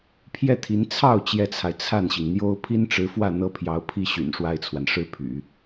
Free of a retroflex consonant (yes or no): no